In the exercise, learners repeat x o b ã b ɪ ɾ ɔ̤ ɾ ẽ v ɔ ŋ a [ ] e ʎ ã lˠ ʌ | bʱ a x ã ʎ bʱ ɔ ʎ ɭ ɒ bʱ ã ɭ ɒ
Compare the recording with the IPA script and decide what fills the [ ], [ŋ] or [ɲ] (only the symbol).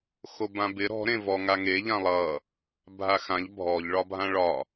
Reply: ŋ